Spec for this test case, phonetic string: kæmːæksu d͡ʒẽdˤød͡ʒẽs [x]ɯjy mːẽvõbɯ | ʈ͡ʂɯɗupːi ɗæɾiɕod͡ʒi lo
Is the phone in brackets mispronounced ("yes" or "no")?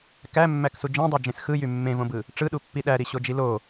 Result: no